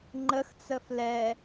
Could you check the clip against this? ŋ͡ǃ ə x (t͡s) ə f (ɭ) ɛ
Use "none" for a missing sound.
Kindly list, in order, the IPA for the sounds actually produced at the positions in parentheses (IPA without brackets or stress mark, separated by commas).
t͡s, l